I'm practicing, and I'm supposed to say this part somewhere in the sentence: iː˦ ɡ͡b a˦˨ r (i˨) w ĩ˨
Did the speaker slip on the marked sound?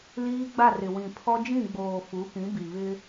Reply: yes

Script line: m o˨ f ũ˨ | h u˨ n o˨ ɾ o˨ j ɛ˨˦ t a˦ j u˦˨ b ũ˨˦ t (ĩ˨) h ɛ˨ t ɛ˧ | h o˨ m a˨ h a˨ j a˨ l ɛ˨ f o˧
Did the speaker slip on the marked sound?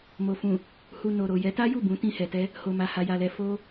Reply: yes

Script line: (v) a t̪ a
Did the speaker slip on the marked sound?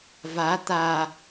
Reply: no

